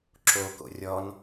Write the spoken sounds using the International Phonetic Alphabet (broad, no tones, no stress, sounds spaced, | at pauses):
ǁ o k o̰ rʲ ɔ n